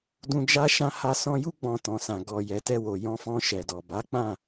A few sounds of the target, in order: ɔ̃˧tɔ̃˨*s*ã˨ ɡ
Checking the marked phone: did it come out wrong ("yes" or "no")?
no